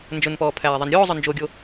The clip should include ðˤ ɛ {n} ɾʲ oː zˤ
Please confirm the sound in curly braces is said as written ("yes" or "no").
yes